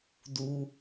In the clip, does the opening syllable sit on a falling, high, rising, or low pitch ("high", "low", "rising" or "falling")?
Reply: high